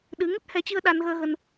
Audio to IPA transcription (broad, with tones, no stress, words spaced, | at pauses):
ɗɨ˨˦ ŋə˦˥t̚hɛ˨˦t͡ɕɨ˧ə̯ ɗa˧nɣəː˧ɣə˧n